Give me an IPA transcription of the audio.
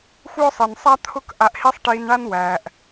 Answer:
xʷ œː˥ sˤ i˩ n sˤ a˥ t̪ʰ ʊ˥ k ʔ a˧ ʔ h i˥ sˤ ʈ iː˧ n ɳ a˥ n w æː˩ ʔ

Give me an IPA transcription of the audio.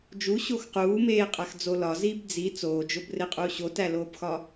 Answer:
d͡ʒ u ɕ o x q uː m eː qʼ æ x d͡z o l ɒ z iː b d͡z i t͡s oː d͡ʒ o b r e qʼ uː ɕ o t æ l oː b x ɒ

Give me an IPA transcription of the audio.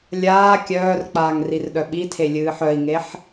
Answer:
lʲ aː kʲ œː r k͡p aː ŋ r i r ɗ œ ɓ i tʰ e lʲ ɨː ħ œ i̯ ŋ e ħ

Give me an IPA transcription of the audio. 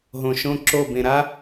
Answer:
ɦ õ˨ ʃ õ˦ ǁ o˦˨ b ẽ˨ ɾ a˦

